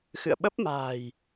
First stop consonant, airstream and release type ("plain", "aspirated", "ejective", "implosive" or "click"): implosive